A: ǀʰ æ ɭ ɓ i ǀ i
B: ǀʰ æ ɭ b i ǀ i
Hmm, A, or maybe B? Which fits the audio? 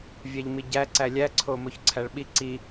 A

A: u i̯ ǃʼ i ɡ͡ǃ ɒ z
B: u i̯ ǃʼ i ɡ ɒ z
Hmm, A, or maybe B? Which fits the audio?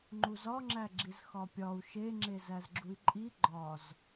A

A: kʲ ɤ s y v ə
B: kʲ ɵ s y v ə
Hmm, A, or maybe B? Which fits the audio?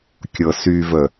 A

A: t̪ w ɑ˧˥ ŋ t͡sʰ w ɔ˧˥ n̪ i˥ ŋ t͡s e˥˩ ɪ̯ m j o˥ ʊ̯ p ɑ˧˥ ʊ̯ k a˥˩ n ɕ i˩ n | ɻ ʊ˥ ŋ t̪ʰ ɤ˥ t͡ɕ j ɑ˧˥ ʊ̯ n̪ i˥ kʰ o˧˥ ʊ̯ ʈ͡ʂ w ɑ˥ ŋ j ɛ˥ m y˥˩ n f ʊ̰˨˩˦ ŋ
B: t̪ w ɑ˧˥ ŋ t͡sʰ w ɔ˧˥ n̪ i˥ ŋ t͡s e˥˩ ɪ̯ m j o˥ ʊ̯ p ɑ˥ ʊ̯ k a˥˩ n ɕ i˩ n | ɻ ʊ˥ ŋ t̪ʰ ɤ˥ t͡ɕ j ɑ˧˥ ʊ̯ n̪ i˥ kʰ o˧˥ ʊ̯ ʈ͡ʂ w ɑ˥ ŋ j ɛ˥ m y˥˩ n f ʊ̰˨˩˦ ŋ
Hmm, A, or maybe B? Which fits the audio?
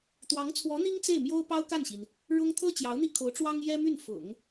B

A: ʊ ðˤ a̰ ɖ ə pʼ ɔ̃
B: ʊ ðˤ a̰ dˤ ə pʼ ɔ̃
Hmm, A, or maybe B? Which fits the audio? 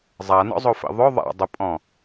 B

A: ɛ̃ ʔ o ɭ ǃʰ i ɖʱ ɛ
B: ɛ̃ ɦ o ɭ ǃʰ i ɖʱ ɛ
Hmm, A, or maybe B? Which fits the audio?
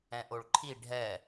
A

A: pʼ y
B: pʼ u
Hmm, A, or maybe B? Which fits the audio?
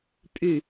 A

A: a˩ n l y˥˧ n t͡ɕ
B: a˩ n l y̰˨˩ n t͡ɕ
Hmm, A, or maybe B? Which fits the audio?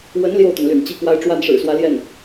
B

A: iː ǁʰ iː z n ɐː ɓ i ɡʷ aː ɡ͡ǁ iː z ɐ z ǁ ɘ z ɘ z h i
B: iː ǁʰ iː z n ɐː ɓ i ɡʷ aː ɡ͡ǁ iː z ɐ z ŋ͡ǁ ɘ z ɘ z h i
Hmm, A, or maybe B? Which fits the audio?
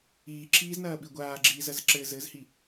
A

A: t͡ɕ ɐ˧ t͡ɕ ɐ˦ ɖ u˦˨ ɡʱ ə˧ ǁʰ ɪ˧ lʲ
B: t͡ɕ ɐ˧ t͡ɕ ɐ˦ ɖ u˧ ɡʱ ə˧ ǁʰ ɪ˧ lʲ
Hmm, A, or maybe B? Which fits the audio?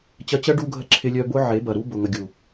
B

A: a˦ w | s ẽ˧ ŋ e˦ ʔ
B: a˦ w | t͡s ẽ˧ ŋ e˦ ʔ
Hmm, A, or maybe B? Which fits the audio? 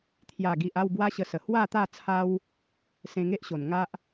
A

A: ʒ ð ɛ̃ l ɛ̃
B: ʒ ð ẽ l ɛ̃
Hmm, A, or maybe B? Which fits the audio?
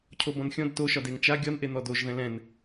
A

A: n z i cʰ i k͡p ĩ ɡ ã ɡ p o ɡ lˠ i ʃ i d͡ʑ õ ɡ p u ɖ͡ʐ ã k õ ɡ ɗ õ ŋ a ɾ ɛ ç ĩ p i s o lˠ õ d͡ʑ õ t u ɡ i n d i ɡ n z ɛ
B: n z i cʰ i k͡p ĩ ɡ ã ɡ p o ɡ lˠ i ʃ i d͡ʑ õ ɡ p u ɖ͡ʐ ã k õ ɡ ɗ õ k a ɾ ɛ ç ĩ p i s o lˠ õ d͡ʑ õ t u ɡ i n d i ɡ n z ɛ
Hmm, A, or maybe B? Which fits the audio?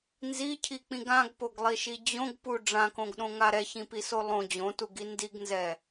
A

